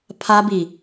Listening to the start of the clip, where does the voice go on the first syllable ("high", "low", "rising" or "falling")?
high